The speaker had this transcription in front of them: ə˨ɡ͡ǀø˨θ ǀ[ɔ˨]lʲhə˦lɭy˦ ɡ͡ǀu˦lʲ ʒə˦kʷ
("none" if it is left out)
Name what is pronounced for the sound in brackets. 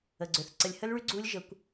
ə˨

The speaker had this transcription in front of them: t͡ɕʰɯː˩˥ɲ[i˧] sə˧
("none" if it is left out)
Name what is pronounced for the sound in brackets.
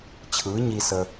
i˧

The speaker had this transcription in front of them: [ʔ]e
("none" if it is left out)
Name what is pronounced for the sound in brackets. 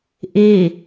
ʔ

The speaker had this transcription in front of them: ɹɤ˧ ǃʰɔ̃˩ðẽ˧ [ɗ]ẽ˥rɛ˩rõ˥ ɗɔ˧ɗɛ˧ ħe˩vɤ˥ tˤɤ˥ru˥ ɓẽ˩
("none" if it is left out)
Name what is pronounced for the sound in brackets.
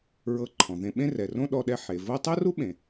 ɓ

